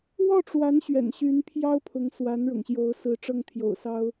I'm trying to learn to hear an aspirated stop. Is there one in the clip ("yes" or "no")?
yes